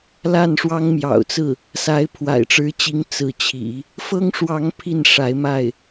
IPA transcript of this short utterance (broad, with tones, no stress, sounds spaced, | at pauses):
l a˥˩ n ʂ w ɑ˥ ŋ m j ɑ̰˨˩ ʊ̯ t͡s ɹ̩˥˩ | s a˧˥ ɪ̯ pʰ w a̰˨˩ ɪ̯ ʈ͡ʂ ɻ̩˧˥ t͡ɕ i˧˥ ŋ t͡s ɹ̩˧˥ t͡ɕʰ ḭ˨˩˦ | f ɤ˥ ŋ ʂ w ɑ˧˥ ŋ pʰ i˥˩ n ʂ a˧˥ ɪ̯ m a˥˩ ɪ̯